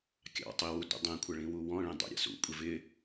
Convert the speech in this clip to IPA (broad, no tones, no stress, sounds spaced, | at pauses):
kʲ ɑ̰ tˤ i w u d ṵ dˤ ĩ kʷʰ ʌ ɭ ĩ w u w ɔ̃ ɭ ĩ dˤ ṵ ɾʲ ɑ̰ s ṵ kʷʼ ɪ v ɪ